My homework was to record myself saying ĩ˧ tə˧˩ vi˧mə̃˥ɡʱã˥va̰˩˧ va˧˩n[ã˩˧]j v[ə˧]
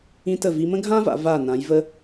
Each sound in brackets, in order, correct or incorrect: correct, correct

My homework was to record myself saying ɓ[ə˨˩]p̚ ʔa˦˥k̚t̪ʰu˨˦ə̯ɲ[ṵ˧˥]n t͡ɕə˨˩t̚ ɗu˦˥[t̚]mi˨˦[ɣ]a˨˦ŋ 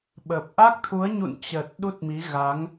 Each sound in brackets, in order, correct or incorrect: correct, incorrect, correct, correct

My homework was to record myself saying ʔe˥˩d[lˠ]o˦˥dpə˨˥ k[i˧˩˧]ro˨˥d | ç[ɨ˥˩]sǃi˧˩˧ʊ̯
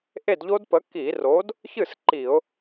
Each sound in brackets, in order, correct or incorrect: incorrect, correct, correct

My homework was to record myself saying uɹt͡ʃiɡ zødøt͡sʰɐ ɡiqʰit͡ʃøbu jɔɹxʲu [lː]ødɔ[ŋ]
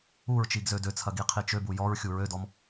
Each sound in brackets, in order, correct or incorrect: incorrect, incorrect

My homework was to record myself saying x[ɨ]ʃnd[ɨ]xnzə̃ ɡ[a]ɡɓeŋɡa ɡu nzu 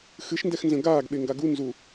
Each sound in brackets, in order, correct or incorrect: correct, incorrect, incorrect

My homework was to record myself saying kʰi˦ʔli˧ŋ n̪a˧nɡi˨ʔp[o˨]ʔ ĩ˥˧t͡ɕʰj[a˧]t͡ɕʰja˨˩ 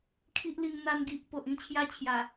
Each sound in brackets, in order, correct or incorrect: correct, incorrect

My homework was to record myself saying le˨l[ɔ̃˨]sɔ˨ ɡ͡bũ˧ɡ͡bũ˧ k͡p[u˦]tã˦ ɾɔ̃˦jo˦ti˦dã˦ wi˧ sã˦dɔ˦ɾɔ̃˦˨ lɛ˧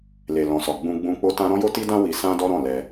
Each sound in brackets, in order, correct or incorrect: correct, incorrect

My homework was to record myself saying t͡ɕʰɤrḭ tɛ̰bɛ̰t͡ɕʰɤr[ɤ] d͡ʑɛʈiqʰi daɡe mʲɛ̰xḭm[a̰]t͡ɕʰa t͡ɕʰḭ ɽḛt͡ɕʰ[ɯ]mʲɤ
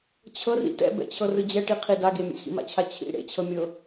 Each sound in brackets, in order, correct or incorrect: incorrect, correct, incorrect

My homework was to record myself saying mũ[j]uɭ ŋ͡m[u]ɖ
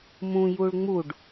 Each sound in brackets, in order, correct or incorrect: correct, correct

